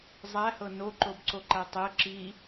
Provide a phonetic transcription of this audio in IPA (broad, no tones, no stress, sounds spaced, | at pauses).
zˤ æ h ɤ n o ǃ o b ǀ o ǃ æ tˤ ɛ ǁ i